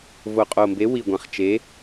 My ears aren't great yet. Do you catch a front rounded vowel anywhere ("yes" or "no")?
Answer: no